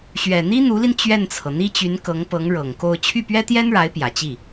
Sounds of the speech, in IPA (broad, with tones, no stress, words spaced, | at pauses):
ɕɥɛ˨˩n̪i˥n̪u˧˥li˧n t͡ɕɥɛ˥˩nt͡sʰɤ˩ n̪i˥t͡ɕy˧˥n kɤ˧˥ŋpɤ˧˥ŋ ɻɤ˨˩ŋko˥˧ʊ̯ t͡ɕʰy˥˩pɥɛ˥t̪jɛ˥nɻa˧˥ɪ̯ pjä˨˩t͡ɕi˥˩